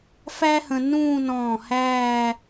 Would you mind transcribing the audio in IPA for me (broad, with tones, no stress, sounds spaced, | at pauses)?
f æː˥ h ə̃˧ n ũː˥˧ n ɔ̃ː˧˩ h æː˥˧